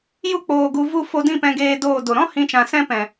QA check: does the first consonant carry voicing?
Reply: yes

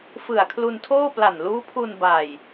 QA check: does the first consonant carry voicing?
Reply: no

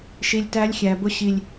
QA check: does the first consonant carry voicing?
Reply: no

